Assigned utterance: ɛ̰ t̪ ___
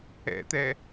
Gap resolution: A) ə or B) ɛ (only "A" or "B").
B